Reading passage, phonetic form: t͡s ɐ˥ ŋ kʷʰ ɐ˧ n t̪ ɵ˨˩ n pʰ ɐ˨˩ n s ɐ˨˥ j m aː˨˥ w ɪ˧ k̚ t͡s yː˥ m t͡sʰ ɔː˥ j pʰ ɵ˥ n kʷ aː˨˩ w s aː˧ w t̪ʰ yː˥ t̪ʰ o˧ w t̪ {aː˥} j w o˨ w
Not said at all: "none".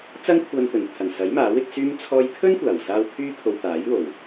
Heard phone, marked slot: aː˨˥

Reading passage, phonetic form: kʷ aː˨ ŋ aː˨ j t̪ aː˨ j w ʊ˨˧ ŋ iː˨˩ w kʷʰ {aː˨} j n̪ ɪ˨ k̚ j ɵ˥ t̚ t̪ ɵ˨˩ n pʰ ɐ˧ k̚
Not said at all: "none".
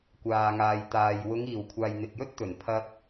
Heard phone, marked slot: aː˨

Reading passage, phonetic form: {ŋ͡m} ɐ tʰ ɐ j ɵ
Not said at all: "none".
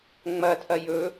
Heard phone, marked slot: ŋ͡m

